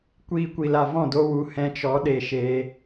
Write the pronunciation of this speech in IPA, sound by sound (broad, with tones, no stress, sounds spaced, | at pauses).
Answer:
kʷ iː˧ kʷ i˨ l a˨ v ɔ̃˦˨ d o˦ w u˧ h ɛ̃˧ t͡ʃ ɔ˨˦ ɗ e˧ ʃ e˦